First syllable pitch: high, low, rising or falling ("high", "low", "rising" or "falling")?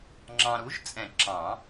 low